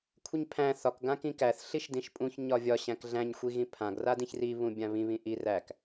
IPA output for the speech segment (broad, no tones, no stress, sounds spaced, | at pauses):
kʷʰ i ɲ pʰ æ̃ θ ɒ k ɡ ã k ĩ k æ θ ɬ i ʃ d ĩ ʃ pʼ ũ ç ɲ ɒ vʲ ɒ ɕ æ̃ k ɮ æ̃ ɲ xʷ i ɣ ĩ pʰ ã ɡ r a d ĩ ç r i β ũ bʲ ã β ĩ β ĩ ʔ i r æ k